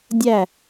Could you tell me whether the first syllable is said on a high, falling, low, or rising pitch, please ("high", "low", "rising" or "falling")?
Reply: falling